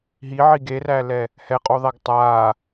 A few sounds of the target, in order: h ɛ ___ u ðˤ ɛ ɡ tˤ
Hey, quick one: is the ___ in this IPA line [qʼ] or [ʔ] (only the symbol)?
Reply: qʼ